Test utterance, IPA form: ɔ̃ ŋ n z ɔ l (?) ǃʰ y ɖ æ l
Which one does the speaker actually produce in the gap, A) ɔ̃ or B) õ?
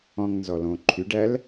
B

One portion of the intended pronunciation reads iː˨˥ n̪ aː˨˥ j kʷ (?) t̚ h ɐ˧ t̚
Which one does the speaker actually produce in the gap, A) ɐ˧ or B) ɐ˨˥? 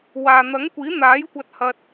A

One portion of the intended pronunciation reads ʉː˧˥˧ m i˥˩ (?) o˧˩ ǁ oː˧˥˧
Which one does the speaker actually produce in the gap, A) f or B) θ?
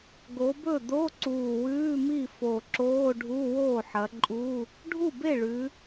A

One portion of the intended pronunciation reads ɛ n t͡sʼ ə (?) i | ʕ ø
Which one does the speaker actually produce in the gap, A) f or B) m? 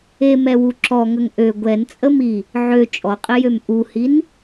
B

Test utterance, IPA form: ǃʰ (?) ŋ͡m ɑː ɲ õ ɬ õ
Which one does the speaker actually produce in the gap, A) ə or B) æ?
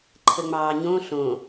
A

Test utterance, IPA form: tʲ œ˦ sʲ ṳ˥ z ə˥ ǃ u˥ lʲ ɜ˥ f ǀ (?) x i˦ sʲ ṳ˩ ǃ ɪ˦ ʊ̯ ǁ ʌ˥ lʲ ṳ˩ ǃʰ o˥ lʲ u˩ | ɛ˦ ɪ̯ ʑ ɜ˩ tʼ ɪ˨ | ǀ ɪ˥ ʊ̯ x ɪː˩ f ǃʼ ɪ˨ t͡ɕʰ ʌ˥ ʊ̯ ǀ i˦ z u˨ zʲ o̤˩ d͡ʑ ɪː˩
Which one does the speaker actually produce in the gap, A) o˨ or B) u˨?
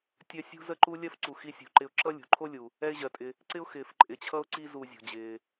B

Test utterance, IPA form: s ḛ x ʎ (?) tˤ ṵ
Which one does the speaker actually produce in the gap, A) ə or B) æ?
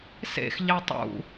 B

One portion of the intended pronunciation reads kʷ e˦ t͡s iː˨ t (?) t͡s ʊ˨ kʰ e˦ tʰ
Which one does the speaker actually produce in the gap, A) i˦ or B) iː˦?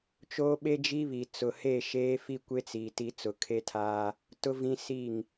A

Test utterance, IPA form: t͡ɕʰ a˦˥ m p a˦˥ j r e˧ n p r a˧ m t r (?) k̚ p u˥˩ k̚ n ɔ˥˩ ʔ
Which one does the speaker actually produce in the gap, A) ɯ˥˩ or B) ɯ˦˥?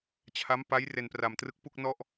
B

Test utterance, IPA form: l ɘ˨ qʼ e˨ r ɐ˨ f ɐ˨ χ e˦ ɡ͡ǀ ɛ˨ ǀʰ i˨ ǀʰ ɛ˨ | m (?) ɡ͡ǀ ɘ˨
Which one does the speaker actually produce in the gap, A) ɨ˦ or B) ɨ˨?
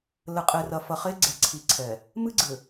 A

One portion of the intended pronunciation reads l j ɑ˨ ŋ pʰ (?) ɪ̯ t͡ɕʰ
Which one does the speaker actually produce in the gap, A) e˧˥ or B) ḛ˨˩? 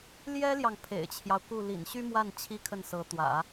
B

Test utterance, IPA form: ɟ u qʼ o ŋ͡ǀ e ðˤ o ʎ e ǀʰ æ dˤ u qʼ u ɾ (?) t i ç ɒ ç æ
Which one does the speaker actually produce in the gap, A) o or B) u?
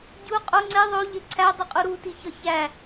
B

